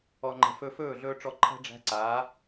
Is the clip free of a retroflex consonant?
no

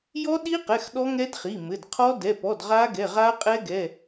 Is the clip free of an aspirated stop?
no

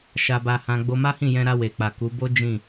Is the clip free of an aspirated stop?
yes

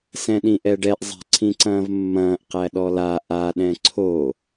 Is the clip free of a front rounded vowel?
yes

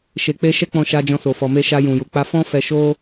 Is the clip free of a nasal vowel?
no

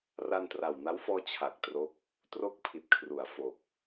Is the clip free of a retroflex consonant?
yes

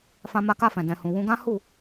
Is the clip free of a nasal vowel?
no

